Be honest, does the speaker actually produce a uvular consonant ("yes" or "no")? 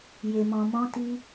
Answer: no